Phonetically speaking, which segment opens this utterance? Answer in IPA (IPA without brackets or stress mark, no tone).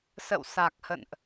s